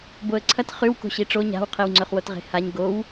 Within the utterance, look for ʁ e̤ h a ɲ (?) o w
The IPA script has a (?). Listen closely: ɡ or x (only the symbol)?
ɡ